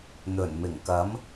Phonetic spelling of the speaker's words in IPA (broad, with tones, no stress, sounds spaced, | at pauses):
n̪ ɵ˨˩ n m ɪ˨˩ ŋ k ɐ˨˥ m